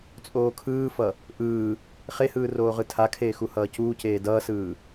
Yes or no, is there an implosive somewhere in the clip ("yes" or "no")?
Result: no